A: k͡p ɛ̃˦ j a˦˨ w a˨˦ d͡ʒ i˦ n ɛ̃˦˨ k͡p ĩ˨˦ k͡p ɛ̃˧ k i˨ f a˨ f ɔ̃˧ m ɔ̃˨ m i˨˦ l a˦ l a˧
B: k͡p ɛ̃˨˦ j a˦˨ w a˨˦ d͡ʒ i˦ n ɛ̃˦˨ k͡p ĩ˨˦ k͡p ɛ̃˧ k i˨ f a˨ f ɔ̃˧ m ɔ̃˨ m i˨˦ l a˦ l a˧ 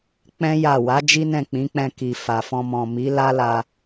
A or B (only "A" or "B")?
A